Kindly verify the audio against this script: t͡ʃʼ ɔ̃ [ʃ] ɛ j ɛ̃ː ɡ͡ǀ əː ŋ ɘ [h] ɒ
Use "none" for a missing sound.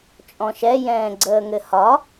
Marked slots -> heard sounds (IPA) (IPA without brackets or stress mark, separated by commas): ʃ, h